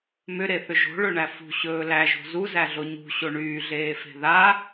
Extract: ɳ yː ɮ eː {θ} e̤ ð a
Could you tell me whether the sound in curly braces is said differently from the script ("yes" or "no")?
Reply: yes